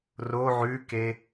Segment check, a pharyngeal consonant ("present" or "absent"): present